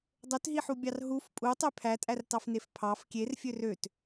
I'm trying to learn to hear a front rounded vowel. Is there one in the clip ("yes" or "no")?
yes